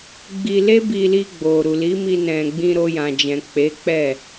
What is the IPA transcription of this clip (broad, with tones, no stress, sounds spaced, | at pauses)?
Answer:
ɡ͡b i˧ l e˦ b i˧ l i˧ ɡ͡b o˨ ɾ u˨ l i˨˦ m i˧ n ɛ̃˨ ɡ͡b ĩ˧ ɾ o˧ j ã˨ d͡ʒ ɛ̃˨ k͡p e˨˦ k͡p ɛ˦˨